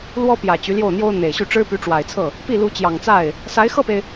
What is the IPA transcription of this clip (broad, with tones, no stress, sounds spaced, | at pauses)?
l w ɔ˥ p j ä˨˩ t͡ɕ y˧˥ l j o˥˩ ʊ̯ n̪ j o˥ ʊ̯ n̪ e˨˩ ɪ̯ ɕ y˥˩ ʈ͡ʂ ɻ̩˥ p y˧˥ ʈ͡ʂ w a˨˩ ɪ̯ t͡sʰ ɤ˥˩ | p i˥˩ l u˧˥ t͡ɕ j ɑ˨˩ ŋ t͡s a˥˩ ɪ̯ | s a˧˥ ɪ̯ x ɤ˥˩ p e˩ ɪ̯